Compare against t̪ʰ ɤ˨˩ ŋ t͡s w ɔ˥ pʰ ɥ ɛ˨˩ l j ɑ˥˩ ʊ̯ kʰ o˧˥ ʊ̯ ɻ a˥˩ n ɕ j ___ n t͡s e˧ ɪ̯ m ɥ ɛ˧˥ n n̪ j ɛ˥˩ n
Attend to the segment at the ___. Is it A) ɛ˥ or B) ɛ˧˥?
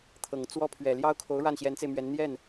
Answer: B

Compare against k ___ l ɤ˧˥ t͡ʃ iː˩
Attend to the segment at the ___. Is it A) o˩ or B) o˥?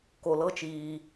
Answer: A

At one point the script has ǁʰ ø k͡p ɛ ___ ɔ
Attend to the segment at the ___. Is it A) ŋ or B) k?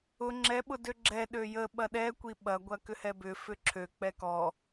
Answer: B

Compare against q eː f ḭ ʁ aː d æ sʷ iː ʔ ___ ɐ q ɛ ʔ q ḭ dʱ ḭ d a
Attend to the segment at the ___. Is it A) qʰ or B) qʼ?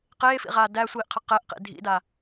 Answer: A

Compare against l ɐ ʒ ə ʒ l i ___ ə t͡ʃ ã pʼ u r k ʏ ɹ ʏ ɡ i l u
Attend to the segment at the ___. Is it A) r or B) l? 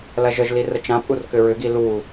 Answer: A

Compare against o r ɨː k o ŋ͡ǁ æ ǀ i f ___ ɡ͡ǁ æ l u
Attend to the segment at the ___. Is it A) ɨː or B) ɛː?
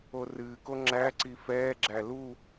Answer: B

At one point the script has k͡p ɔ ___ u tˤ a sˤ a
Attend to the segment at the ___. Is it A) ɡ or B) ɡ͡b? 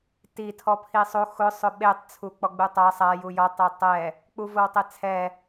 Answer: B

